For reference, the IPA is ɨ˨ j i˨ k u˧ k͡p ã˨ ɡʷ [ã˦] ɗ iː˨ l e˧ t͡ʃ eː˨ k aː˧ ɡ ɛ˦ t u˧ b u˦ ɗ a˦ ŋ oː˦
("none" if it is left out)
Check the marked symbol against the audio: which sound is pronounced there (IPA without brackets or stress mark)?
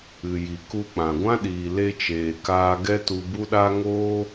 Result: ã˦